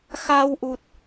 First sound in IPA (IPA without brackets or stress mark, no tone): x